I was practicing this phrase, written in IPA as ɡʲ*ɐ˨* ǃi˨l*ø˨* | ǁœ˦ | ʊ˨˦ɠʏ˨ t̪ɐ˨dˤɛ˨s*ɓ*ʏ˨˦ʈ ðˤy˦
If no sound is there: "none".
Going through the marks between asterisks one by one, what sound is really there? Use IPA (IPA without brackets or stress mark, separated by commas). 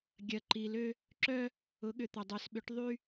ɐ˨, ø˦, ɓ